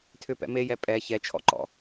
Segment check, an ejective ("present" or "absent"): present